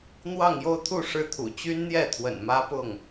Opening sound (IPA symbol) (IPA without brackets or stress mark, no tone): n̪